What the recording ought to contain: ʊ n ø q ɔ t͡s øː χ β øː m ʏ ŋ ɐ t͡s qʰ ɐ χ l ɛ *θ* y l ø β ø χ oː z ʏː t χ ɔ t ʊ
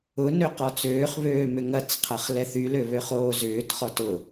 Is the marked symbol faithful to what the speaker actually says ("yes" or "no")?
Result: yes